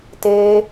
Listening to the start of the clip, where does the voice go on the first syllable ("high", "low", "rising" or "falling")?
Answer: high